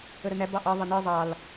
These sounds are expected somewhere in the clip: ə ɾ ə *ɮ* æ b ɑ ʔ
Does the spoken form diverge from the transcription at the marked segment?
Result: yes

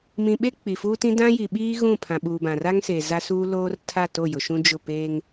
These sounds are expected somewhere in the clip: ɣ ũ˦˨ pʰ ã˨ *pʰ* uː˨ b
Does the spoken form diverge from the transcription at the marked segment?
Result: yes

